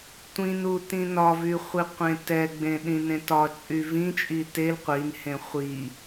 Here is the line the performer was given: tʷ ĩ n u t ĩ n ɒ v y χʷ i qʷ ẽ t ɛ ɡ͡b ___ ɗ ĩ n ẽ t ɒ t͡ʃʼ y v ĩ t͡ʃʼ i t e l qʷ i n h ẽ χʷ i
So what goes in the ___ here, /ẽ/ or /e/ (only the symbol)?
ẽ